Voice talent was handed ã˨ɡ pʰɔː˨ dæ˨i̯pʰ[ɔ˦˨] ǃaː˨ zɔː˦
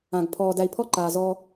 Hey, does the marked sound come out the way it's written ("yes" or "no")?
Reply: yes